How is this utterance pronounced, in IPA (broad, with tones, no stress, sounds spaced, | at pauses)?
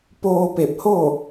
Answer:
p oː˧ p e˧˩ p̚ h o˥˨